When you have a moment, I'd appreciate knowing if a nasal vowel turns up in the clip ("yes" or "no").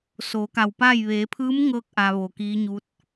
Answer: no